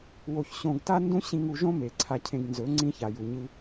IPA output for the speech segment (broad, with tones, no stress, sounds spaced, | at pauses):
w o˧ ç ɕ õ˧ ɡ t a˦ n d ũ˦ ɕ ĩ˧ ŋ u˧ ʒ õ˦ m e˨ ǀʰ a˧ cʰ ẽ˧ ɡ n z ɵ˨˦ ŋ͡ǀ ĩ˧ ç a˨ j u˨ ɲ ɨ˧